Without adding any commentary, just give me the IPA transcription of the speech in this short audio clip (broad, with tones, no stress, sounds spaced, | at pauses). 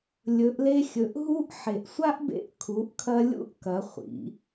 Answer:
lʲ ɵ˩˧ ʔ l e˧ xʲ ɵ˩˧ ʔ ɦ u˧˥ ʔ ħ e˩ ʔ sʷ a˥ ʔ b ḛ˧ ʔ kʰ u˩˧ ʔ kʰ ɐ˧ lʲ ṵ˧˥ ʔ k ɐ˩˧ χʷ ḭ˩˧